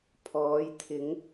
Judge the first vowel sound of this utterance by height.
mid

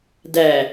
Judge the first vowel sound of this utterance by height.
low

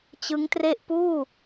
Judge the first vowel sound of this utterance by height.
high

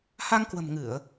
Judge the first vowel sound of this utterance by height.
low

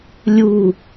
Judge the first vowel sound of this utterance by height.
high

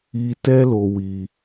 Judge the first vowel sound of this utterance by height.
high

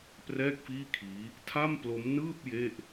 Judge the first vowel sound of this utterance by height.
mid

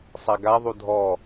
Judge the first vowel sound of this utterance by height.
low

